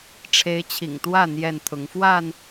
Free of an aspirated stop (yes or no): no